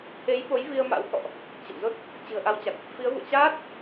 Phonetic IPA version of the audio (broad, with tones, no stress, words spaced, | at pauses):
t̪ʰe˨˦jɓo˨˦j vi˧ə̯ma̰˧˥wkɔ̰˧˨ʔ | t͡ɕḭ˧˨m zo˦˥t̚ | t͡ɕɨ̤˨˩ə̯ʔa˨˦wt͡ɕa˨˩k̚ | fi˨˦ə̯vṵ˧˨ə̯ t͡ɕaː˦˥t̚